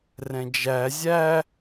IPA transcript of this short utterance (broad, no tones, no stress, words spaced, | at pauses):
rɛ̃d͡ʒæ zʲæ